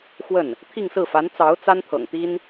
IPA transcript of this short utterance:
xwə˥˩n | t̪ʰi˥˧ŋsɹ̩˥˩ fa˧˥nt͡sɑ˧˥ʊ̯ t͡sa˥nt̪ʰɤ̰˨˩ŋt̪i˥n

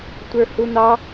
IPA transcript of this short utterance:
tʷə˞hun̪ɑ

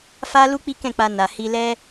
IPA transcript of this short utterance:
fa˦ lu˦k͡pi˦kɛ̃˦˨k͡pa˧ na˨ hi˧lɛ˦

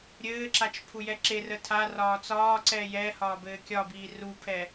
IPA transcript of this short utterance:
ɾʲɘːǁat͡ʃ pʰujɛǁerə tʰarɒː t͡sɒːǀɛː jɛhɒːb ɘːkʲɒbiː rupʰɛ

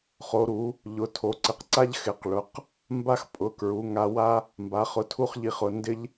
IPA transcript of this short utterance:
χo˩˧ɾu˩˧ | ʎʊ˩˧ tʰo˩˧ǀɪ˩˧qǀa˥ʎ xɪ˨˩qɭʊ˩˧q | mba˥xpʼʊ˩˧kɹu˩˧ ŋa˥ wa˥ | mba˩˧χʊ˩˧ tʰu˥χʎi˨˩χʊ˨˩ ndɪ˥ʎ

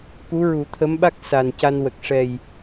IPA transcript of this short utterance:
ku˧˥ɹu˨˩˦t̪ʰə˧˥mɓa˦˥k̚ sa˨˩n ca˧nwə˨˩k̚ ʂɛ˨˩j

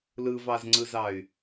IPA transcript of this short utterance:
lɯvɑzŋ͡ǀɯzɑy̯

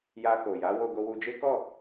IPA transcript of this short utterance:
ja˧ko˨ja˨˦ wo˧ɡo˧wu˧d͡ʒe˦ kɔ˦˨

